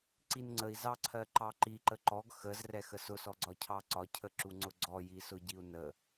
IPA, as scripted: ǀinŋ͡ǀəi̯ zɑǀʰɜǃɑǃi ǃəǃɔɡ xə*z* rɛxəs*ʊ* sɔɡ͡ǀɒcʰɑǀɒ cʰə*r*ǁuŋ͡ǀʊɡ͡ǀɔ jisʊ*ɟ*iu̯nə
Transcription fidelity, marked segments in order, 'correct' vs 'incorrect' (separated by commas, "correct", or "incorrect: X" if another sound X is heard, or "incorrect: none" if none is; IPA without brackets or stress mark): correct, correct, incorrect: none, correct